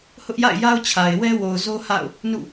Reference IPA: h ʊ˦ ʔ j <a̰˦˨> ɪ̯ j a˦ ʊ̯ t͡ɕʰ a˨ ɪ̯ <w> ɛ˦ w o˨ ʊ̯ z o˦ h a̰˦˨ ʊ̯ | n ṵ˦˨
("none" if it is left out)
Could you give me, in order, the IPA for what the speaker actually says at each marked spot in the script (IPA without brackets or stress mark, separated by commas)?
a̰˦˨, w